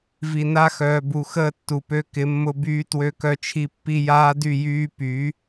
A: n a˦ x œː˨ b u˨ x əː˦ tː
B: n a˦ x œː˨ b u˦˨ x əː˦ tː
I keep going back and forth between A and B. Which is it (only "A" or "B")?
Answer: A